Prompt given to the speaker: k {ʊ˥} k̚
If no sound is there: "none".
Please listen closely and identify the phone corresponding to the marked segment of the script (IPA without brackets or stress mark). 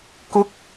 ʊ˨˥